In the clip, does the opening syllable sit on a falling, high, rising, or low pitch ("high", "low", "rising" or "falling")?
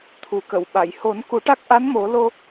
low